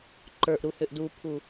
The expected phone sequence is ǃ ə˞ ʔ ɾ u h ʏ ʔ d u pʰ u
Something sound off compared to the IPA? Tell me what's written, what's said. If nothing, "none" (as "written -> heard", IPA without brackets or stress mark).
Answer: none